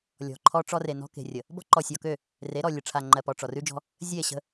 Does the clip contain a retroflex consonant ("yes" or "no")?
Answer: yes